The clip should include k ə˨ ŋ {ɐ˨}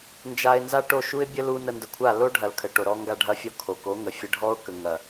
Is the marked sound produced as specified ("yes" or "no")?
yes